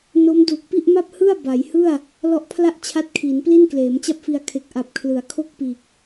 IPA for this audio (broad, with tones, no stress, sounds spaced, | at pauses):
n o˦˥ m d uː˨˩ k̚ p i˥˩ ʔ m a˥˩ p̚ h ɯ˥˩ a̯ b a˩˦ j h ɯ˥˩ a̯ | l ɔ˦˥ ʔ pʰ l a˥˩ ʔ t͡ɕʰ a˦˥ t̚ kʰ iː˩˦ n p l i˥˩ n k l eː˩˦ m t͡ɕ a˥˩ p̚ f i˧ a̯ kʰ e˨˩ k̚ ʔ a˨˩ p̚ kʰ l ɯ˩˦ a̯ kʰ o˥˩ k̚ p iː˨˩ k̚